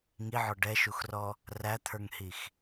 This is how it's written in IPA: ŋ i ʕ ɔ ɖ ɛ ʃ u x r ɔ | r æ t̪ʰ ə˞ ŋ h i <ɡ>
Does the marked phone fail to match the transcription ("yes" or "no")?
yes